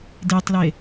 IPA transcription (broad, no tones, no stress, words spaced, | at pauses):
detˤle